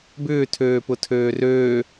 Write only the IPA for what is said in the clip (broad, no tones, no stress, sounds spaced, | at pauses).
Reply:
b ʏː tʰ øː p ʊ tʰ øː r øː